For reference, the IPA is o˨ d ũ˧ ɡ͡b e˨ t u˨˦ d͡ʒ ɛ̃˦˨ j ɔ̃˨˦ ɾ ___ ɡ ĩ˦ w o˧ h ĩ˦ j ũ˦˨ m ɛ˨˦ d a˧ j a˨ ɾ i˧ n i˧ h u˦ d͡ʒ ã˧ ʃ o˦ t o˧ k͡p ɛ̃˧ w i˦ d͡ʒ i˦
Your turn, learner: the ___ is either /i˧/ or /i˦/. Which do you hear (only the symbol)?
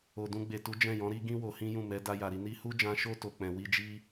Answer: i˦